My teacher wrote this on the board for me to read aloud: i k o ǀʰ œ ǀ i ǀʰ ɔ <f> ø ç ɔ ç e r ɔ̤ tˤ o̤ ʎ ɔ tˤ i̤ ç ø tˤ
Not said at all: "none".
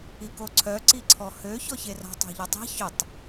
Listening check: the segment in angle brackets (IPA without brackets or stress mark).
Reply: h